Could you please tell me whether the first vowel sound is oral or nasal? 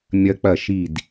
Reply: oral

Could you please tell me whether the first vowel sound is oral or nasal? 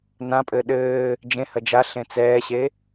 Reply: nasal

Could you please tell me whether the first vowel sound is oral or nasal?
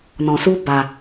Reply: nasal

